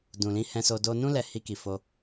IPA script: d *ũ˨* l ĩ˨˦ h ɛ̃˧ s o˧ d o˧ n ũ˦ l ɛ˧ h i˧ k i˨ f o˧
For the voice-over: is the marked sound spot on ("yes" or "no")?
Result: yes